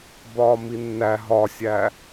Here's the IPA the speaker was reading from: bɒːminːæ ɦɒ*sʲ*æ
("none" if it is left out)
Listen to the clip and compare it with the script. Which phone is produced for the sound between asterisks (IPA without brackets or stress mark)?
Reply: sʲ